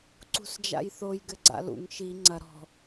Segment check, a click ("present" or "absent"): present